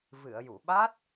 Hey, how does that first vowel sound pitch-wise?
low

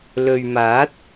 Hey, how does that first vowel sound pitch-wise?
low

